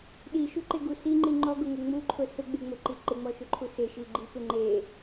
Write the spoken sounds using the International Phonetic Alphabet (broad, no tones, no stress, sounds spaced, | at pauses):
ɗ i ʃ u ǃ e ɡ u s i ŋ͡ǃ i ŋ͡ǃ ɔ ɡ ʊ ŋ ʊ ŋ͡m u ǃʰ ʊ s ʊ ɡ͡b e ŋ͡m ʊ ǃ i ǃ ɪ ŋ͡m ɔ ʃ ʊ ǃʰ u s ɪ ʃ i ɡ͡ǃ i p ɪ ŋ͡ǃ e